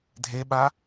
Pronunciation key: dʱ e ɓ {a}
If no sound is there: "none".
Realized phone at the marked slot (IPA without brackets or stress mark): a